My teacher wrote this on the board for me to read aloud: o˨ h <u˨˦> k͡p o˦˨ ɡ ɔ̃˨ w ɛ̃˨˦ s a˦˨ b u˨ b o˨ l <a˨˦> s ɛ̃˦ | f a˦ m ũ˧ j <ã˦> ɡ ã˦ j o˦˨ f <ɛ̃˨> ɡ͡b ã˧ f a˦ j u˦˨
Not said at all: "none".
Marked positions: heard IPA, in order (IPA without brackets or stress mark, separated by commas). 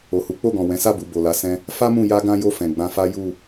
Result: u˨˦, a˨˦, a˦, ɛ̃˨